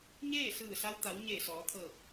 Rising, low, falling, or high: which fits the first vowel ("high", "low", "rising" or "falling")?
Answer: falling